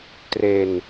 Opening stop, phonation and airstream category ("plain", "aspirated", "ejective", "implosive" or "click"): plain